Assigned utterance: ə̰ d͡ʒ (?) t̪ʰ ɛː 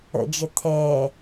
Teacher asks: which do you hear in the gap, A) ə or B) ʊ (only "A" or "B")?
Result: A